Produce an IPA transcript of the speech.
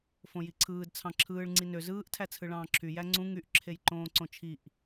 f õ j i ǀʰ ɯː d t͡sʰ ɑ̃ ǁʰ ɯː ɭ ŋ͡ǀ i n ø z ɯː ʔ tʰ æ t͡sʰ ɯ ɭ ɑ̃ː ǁʰ y j æ ŋ͡ǀ ũ ŋ y ʔ ǁʰ e j ǃ õː ǀ õ t͡ʃʰ i ʔ

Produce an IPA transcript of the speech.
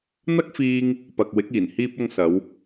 n̪ ɐ˥ k̚ f iː˧ ŋ | p ɐ˨ k̚ w ɪ˨˥ k̚ iː˨˩ n h iː˧ p̚ ɐ˧ ŋ s ɐ˨˧ w

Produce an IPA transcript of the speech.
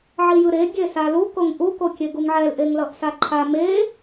ʕ i j ɯ ɾ e ɡʲ e s a l u k o ŋ ʔ u k o kʲ e ɡ u ŋ ʕ ɛ l ʔ e ŋ l ʌ ʔ s a ǃʰ a m e

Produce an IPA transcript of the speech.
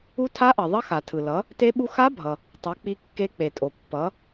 u˦˥ tʰ a˦˥ ʔ ʌ˩ ðˤ ʌ˦˥ x a˩ tʰ ɯ˩ l ʌ˩˥ | t e˦˥ ɓ u˦˥ x a˦˥ bʱ ʌ˩ | tˤ ʌ˩˥ k͡p i˦˥ kː e˦˥ k͡p e˩ tʼ o˩ pː ʌ˩˥

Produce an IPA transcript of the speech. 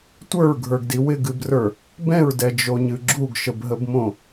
tʷ ə˞ ɹ ɡʱ ə˞ ɡ d i w ɪ ɡ ɨ b r ə˞ | b ɛ̃ ɹ d ɛ d͡ʒ o ɲ ɨ ɡ͡ǁ u ɡ ʃ ə b ɦ ə b m õ

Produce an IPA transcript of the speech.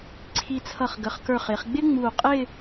ǀʰ i˧˩ t͡sʰ ʌ˧˩ χ ɡ ə˩˧ χ k ə˞˧˩ χ ɪː˩˧ χ ɡ͡b ɪ˥ ŋ͡m uː˧˩ qʼ ɪ˥˧

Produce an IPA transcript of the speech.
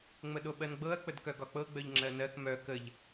ŋ͡m ə ɗ o ɓ ɜ n ɡ͡b ɤ ɐ̯ k͡p ə d k œ ɡ ɒ k͡p ɤ ɡ͡b œ ʎ ŋ͡ǁ ɜ n ɜ k m œ k ə ʎ

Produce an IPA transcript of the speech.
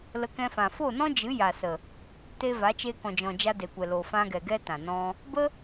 l ə˧ k ɛ̃˧ f ã˨ f o˦˨ n ɔ̃˦ d͡ʒ ɨ˨˦ j a˨ s ə˨ | t e˧ v a˨˦ t͡ʃ e˧ k ɔ̃˨ d͡ʒ ɔ̃˨ d͡ʒ a˧ d e˨ kʷ ɛ˨ l o˨ f ã˧ ɡ ɛ˨ ɡ ɛ˦ t ã˨ n ɔ̃˧ | b ə˦

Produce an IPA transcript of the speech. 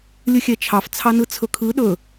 lʲ ɯ xʲ ɛ t͡ʃʰ ɑ f t͡sʰ ɑ n ɯ t͡sʰ ɵ kʰ ɯ ɗ ɵ

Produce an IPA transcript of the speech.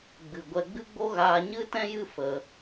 ɡ͡b ɨ˧ ɡʷ ɛ˦ ɡ͡b ɨ˦ ɡ͡b o˦ ɣ aː˧ ɲ ɨ˦ t ɛ̃˦ j ɨ˦ f ə˧

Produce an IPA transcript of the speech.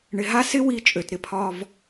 ɳ ɪ˨ ɦ a˦ s ɪ˦ w i˨˦ t͡ʃʼ ø˨ t ɾ ɪ˦ pʰ ɒ˦ v

